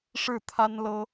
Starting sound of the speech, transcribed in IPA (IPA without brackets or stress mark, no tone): ʂ